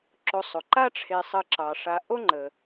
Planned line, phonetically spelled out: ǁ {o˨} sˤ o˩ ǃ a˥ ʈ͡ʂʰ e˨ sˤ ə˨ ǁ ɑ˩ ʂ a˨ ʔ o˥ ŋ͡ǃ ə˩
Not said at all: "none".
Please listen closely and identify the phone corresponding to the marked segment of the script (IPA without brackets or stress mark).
o˨